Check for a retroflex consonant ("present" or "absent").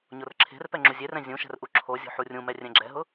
absent